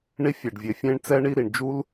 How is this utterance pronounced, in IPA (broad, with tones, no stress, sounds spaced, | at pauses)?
ɳ i˥ fʲ ɛ˩ ɖ vʲ e˩ fʲ ẽ˥ ɳ t͡s ɛ˥ ɳ i˥ ɾ i˩ ɳ d͡ʒ u˥ l